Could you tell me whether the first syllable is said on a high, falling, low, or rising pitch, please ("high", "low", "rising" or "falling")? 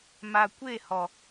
low